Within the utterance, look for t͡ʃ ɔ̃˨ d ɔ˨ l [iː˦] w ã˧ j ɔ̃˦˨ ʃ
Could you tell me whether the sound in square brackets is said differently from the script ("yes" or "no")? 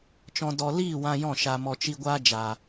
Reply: yes